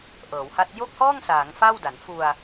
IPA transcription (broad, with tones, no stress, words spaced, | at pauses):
ʔɤː˩˦wha˦˥t̚ jo˥˩k̚hɔː˥˩ŋsaː˩˦ŋ fa˥˩wda˩˦n fu˧a̯